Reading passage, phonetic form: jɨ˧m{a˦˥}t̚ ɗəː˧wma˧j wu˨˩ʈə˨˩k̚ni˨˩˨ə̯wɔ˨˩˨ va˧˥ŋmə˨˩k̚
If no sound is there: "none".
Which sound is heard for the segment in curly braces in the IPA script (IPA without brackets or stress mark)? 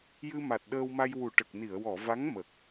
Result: a˨˩